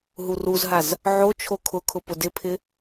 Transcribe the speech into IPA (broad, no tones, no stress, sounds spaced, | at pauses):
ɦ u r u z ɦ a z | ʕ o t͡ʃʰ o kʰ ʊ kʰ ʊ p ʊ d ɪ pʰ ɪ